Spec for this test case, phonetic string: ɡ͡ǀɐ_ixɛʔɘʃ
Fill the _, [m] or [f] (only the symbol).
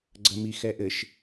m